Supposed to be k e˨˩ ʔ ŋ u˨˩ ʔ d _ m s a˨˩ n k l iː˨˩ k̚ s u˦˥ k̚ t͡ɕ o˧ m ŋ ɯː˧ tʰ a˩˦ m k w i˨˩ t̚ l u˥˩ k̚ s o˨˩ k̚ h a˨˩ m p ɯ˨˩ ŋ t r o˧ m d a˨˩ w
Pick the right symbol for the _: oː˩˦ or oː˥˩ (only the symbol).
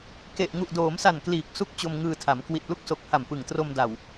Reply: oː˩˦